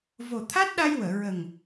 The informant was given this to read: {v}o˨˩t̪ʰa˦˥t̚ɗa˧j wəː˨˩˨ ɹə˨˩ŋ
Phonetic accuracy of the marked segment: correct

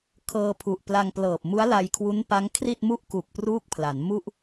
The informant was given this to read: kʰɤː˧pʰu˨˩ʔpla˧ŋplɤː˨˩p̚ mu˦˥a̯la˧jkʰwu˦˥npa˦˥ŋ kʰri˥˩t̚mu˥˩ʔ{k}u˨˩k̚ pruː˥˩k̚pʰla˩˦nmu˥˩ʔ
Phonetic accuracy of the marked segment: correct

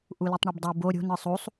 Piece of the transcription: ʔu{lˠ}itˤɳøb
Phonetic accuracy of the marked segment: incorrect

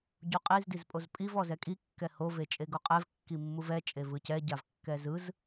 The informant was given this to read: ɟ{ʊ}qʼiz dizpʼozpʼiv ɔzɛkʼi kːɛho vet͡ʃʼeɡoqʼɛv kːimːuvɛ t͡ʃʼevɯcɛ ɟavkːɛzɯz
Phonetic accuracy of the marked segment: incorrect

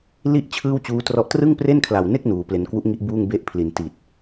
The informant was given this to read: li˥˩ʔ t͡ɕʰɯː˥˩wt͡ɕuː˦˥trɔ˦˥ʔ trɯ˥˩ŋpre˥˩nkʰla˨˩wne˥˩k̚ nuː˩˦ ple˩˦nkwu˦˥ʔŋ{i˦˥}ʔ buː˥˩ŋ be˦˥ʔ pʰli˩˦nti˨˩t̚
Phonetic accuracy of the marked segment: correct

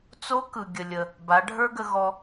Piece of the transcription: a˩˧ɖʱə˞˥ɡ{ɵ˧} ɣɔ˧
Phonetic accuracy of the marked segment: incorrect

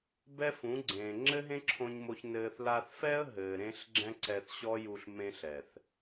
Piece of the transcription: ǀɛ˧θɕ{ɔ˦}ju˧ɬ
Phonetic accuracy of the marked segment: correct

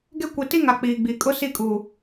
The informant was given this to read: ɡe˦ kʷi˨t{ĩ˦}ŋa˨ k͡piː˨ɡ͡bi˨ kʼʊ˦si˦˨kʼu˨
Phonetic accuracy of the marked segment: incorrect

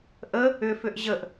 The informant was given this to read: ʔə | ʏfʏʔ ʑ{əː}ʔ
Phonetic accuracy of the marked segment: incorrect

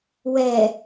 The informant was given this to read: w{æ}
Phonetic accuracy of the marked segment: incorrect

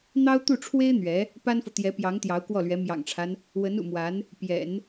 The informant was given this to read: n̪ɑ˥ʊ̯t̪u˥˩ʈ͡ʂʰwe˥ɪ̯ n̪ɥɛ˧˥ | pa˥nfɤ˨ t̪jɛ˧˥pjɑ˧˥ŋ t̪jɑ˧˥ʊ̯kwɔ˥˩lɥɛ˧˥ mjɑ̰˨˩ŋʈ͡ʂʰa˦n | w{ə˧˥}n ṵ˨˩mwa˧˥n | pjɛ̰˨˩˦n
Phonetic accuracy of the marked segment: correct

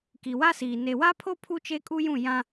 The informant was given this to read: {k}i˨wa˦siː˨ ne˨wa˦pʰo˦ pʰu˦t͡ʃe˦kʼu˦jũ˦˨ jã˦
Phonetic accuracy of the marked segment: correct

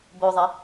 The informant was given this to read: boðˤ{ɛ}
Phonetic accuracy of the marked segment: incorrect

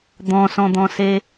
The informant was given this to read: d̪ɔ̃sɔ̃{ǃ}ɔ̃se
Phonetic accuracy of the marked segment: incorrect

